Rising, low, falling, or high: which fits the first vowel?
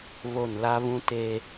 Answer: falling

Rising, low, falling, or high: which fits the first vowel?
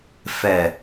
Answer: low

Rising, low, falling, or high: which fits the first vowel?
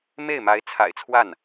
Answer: falling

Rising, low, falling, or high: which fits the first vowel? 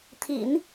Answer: low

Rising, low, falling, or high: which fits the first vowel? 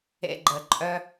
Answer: high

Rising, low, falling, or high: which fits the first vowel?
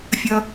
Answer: high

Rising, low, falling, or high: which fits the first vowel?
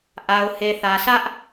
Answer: low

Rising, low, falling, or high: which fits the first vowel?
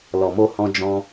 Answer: low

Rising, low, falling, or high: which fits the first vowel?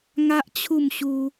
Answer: high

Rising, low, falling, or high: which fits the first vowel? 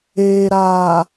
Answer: low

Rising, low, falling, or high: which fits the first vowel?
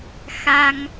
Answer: high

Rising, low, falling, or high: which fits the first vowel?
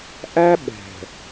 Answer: high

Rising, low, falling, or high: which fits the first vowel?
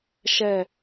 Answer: falling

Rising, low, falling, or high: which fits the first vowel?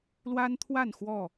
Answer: high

